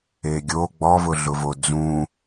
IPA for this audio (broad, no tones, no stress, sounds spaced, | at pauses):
e ɡʲ o ɡ͡b ɔ v ʊ ɮ ʊ v o d͡z ũ